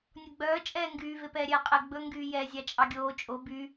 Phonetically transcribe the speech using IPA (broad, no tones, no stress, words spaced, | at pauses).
nʲoɡ͡bœː t͡ʃʼɛːŋɡyː vepɛːɾʲɛːqʼɛ ɡ͡bɵ ŋɡyːjɛ zʲɑt͡ʃʼɑɡʲoː t͡ʃʼo by